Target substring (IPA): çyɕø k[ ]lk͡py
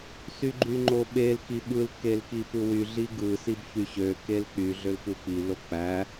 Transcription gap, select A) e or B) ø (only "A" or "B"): A